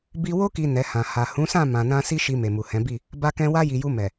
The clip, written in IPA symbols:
b i˧ w o˧ k i˨ n ɛ˨˦ h ã˧ h a˨ h ũ˨˦ s ã˦˨ m ã˨ n ã˧ s i˦ ʃ i˧ m e˨ m u˨ h ɛ̃˨˦ b i˦˨ | b a˧ k ɛ̃˧ w a˧ j i˨ j u˧ m ɛ˨

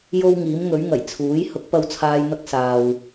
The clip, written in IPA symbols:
j o˥ w ŋ iː˨˥ m ŋ ɵ˨˥ ɥ ŋ ɐ˨˩ j t͡sʰ uː˨˥ j h ʊ˨˥ k̚ p ɐ˧ w t͡sʰ aː˧ j n̪ ɐ˥ k̚ s aː˨ w

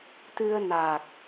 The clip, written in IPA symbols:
t̪ ɨ˧ ə̯ n a˨˩ k̚

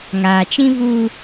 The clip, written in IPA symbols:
ŋ aː˨ t͡ʃ ĩ˦ v u˦

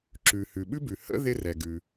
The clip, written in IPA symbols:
ǁ ʉ˩ h ʉ˩ ɓ ʉ˥ b ʉ˩ h ə̰˥ ð ɪ˥ r ɛ˩ ɡ ʉ˩

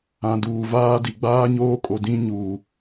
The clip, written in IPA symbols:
ã˨ d uː˨ v aː˦ d i˨ ɡ͡b aː˦ ɲ oː˦ kʼ o˨ d ĩ˦ ɲ uː˨

